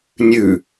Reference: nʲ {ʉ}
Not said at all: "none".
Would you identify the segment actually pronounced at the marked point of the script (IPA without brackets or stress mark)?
ʉ